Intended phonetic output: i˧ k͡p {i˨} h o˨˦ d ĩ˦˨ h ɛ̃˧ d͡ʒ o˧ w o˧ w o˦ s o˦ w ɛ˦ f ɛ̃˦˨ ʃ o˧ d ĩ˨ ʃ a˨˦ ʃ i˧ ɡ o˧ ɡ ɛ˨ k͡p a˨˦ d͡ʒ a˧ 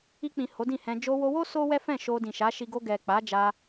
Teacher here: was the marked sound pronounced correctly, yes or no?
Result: no